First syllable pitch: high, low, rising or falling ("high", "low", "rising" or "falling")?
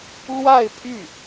falling